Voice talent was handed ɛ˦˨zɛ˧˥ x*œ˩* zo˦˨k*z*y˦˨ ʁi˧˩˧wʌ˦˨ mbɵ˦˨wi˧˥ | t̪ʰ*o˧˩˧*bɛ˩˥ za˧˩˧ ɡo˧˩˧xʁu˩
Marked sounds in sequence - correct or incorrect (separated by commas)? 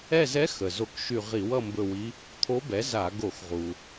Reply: incorrect, incorrect, incorrect